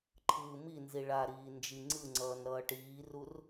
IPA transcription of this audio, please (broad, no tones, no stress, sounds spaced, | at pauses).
ǃʰ ɯː m i n z i ɭ a ɾ iː n d͡ʒ i ŋ͡ǀ ɯ ŋ͡ǀ ʌː n ɾ ʌː ʈ iː r u r